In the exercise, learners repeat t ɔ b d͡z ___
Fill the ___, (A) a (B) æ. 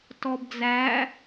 B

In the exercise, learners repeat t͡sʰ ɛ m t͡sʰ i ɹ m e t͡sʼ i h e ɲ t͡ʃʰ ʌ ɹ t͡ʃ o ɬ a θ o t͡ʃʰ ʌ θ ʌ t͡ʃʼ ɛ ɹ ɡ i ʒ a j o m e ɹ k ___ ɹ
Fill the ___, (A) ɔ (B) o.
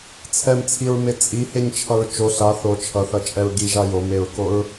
B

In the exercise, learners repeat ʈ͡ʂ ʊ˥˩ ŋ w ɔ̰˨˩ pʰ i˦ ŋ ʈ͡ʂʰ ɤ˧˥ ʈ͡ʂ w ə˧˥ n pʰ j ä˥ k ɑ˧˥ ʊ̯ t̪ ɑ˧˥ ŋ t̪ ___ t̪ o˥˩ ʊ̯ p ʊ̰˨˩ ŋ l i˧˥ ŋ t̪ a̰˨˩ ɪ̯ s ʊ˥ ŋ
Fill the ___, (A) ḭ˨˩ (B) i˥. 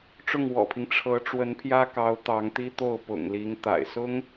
B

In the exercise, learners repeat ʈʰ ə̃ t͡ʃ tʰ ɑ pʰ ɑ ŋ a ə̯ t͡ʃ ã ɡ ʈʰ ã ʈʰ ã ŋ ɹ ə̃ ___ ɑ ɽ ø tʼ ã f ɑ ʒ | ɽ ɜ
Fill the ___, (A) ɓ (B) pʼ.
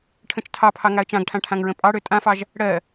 B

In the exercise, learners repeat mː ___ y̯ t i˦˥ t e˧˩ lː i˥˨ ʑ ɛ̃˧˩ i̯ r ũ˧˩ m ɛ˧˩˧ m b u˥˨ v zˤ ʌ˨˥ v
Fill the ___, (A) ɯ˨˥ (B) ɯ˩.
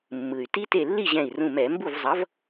B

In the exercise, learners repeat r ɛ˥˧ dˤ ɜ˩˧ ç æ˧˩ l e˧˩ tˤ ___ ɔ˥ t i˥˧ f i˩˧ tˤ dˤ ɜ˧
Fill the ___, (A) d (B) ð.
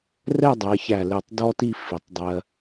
A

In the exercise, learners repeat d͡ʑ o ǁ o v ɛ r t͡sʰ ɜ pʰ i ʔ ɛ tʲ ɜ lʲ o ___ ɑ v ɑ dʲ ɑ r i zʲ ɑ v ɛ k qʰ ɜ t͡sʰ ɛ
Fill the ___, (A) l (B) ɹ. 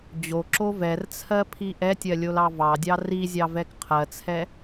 A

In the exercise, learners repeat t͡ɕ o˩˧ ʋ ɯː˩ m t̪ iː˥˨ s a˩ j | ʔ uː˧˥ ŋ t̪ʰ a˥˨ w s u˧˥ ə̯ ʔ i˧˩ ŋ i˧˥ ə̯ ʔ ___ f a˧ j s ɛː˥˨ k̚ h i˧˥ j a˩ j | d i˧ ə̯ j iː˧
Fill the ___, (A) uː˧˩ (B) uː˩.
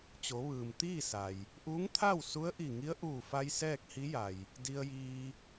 A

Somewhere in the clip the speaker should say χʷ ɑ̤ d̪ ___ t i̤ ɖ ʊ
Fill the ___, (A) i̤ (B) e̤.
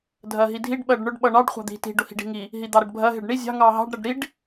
A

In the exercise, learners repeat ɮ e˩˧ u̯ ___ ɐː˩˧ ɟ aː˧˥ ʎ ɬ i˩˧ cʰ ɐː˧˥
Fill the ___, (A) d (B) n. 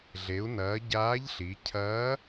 B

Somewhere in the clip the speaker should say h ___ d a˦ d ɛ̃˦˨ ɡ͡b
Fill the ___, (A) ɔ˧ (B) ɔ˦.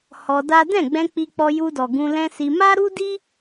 A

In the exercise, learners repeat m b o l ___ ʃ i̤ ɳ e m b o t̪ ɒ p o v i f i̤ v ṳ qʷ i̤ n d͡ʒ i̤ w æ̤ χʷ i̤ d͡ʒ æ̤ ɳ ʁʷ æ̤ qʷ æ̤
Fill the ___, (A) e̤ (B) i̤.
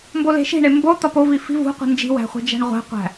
A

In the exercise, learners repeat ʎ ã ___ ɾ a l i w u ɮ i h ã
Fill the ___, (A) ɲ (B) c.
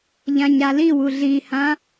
A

